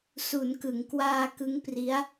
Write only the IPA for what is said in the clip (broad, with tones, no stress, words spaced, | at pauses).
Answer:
su˩˦nkɯ˩˦ŋkwaː˧kɯ˦˥ŋ pri˦˥a̯